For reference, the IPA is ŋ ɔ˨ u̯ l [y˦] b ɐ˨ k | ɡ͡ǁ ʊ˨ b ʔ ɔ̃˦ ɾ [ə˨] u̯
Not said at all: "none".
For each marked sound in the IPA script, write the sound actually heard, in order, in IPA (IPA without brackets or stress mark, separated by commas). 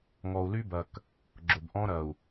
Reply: y˦, ɐ˨